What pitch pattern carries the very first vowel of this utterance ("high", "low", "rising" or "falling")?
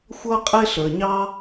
high